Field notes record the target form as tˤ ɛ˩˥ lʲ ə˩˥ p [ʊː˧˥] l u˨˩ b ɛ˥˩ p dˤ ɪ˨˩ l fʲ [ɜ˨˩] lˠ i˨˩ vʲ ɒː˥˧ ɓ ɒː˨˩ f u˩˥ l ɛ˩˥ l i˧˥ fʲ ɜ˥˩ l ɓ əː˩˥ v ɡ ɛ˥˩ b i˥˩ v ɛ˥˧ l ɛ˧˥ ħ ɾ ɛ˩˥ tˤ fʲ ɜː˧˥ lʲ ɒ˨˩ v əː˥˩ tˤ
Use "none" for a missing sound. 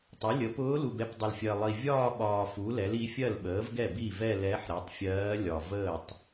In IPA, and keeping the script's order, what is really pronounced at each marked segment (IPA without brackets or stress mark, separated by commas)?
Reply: ʊː˧˥, ɜ˨˩